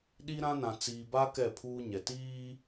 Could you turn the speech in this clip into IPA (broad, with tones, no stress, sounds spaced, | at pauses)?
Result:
ɗ i˦ ɾ ã˦ n ã˨ t͡s iː˨ b a˦ k ɛ˦˨ pʰ uː˦ ɲ ɛ˨ t iː˦